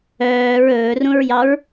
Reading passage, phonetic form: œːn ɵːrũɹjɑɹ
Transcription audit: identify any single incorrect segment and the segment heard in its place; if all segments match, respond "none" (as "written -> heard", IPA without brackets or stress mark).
n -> ɹ